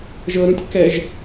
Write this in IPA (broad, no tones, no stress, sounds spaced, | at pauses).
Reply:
ʒ ɤ ɾ ũ tʲ k ɛ ʒ